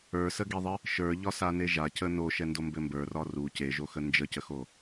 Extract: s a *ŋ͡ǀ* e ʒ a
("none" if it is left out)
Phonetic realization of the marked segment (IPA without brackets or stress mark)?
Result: n